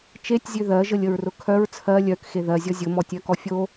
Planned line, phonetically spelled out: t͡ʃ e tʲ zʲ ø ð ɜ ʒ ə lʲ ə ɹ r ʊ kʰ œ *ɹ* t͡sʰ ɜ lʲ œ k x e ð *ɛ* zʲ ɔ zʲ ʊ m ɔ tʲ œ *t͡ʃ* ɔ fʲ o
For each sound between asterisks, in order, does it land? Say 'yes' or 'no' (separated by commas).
yes, no, no